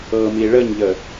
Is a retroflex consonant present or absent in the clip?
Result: present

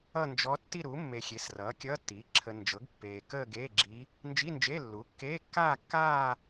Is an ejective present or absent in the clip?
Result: absent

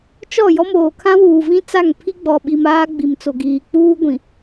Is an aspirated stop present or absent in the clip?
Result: present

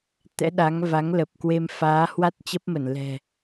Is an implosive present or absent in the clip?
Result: present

